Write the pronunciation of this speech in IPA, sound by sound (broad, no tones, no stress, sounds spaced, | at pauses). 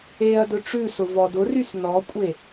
e ɐ̯ d ɵ ʈ͡ʂ ʉ s ʊ v ɔ d ʊ r y s n ɔ kʷʼ e